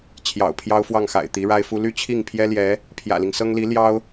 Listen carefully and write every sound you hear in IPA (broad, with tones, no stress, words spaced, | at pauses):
t͡ɕʰjɑ̰˨˩ʊ̯pʰjɑ˥ʊ̯fwɑ˥˩ŋxa̰˨˩ɪ̯ t̪i˧˥ɻa˥ɪ̯fu˥ ly˥˧t͡ɕʰi˥˩ŋpʰjɛ˥ljɛ˧˥ | pʰjä̰˨˩li˦ŋsɤ˥ŋ li˧˥ ljɑ˥ʊ̯